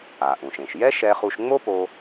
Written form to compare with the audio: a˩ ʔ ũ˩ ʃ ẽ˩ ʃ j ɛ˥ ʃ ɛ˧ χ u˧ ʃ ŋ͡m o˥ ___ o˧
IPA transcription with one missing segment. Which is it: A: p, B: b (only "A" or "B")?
A